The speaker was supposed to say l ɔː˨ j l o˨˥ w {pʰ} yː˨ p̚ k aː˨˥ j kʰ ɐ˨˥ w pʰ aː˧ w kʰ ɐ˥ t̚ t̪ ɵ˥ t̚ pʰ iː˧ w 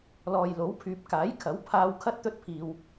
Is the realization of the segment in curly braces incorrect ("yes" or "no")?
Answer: no